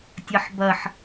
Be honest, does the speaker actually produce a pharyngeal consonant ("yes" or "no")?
yes